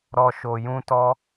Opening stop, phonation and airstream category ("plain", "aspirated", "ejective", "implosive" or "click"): plain